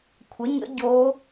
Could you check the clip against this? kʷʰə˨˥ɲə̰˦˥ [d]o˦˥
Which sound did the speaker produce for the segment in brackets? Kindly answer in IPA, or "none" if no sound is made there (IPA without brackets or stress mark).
ɟ